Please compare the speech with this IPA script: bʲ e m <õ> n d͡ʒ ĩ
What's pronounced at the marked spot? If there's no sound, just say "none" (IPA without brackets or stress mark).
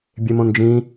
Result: õ